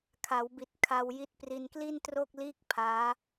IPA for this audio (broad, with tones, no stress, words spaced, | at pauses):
kʰa˩˦wbi˨˩t̚ kʰa˧wji˦˥t̚ pri˧nkli˥˩ntro˥˩k̚liː˥˩k̚ pʰaː˦˥